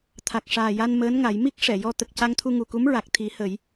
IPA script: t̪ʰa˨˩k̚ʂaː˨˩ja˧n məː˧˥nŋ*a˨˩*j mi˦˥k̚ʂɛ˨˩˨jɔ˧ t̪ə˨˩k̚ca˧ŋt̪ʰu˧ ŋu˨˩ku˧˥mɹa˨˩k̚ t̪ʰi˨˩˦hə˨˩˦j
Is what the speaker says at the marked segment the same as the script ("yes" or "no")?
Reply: no